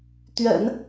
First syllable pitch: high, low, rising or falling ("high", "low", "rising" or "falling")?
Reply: low